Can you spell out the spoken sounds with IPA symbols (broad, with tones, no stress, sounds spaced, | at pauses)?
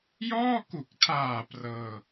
j ɔː˥˩ k u˨˩ k̚ tʰ aː˨˩ p r ɤː˧